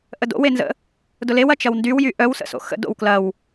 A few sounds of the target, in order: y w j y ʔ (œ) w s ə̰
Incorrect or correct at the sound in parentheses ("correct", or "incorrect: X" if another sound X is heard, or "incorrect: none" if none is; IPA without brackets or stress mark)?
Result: correct